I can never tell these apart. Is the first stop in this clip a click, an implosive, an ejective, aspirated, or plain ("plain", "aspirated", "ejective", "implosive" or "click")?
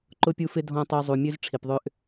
click